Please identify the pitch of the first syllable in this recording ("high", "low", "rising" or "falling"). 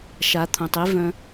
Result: rising